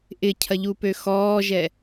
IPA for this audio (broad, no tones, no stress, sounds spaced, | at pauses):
ʔ ɪ cʰ ɐ ʎ u p ø x ɔː ʒ ɛ